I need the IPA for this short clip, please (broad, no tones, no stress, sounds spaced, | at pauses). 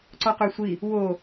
ǀ ɔ q ø sʷ i | w o